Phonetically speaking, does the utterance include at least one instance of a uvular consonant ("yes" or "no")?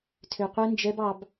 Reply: yes